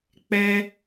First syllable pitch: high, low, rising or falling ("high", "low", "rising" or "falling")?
high